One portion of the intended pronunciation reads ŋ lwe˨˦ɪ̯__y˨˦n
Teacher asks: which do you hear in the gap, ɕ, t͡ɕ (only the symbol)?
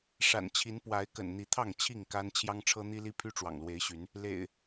ɕ